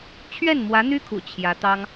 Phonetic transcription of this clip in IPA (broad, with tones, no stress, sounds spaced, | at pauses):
t͡ɕʰ ɥ ɛ˥˩ n m w ä˧˥ n̪ y˥ kʰ ṵ˨˩ t͡ɕʰ j ä˧˥ t̪ ɑ˥ ŋ